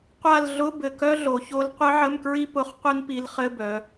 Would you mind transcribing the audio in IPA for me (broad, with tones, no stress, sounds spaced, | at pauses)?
qʷ a˦˨ l ɮ ʊ˧˥˧ b ɘ˨˩ k œ˥ ɮ o˩˧ ç o˧˥ l qʷ ɨ˧˥ ʕ ə˧˥˧ m k ɹ i˥ p ʊ˧˥˧ χ qʷ ɨ˥ n p i˧˥ l χ ɘ˧˥˧ b œ˩˧